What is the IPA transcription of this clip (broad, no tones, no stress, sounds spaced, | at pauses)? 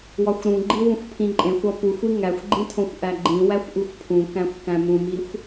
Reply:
w ɒ xʷ ɾ ũ ɡ͡ǃ i w ũ xʷ pʰ ĩ ǃʼ ẽ xʷ ɒ p u xʷ i ŋ æ xʷ ɡ͡ǃ ĩ tʰ õ xʷ ʔ æ ɡ͡ǃ ĩ w æ xʷ ʔ u xʷ pʰ ũ k æ̃ xʷ k æ̃ m ũ m i xʷ